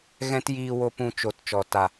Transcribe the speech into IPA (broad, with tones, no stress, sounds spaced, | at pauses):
ɣ ɛ̃˦ t j iː˧ w o˧ p ũ˧ t͡ʃ o˨ t t͡ʃ ɔ˨ t a˨